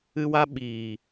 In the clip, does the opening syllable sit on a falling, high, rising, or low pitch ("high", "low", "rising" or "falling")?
high